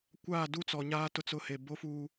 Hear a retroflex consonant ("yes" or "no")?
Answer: no